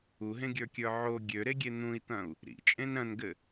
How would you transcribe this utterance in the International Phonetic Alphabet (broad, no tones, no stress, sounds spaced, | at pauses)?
u ɦ ẽ ɡʲ ə˞ kʲ ə˞ ʕ o ɡʲ ø ɾ e ɡʲ e n̪ ũ i̯ t̪ ɐ̃ u̯ | ɾ ḭ t͡ʃʼ ẽ n ɾ ɐ̃ n ɡ ɘ